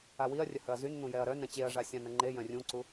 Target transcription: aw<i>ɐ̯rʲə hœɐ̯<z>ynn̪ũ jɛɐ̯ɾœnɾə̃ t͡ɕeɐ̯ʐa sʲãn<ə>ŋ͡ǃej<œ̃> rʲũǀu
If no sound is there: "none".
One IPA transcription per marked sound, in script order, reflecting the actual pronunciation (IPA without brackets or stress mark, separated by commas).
i, z, ə, œ̃